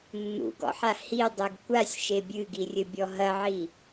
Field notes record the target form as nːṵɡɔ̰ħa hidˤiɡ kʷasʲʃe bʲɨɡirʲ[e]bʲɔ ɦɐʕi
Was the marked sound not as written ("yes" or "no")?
yes